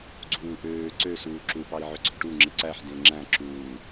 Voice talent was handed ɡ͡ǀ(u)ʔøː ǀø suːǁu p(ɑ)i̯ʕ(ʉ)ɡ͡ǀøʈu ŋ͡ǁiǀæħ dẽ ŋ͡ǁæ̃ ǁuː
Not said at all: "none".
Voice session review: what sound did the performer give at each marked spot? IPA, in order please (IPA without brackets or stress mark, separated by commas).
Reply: uː, ɑ, ø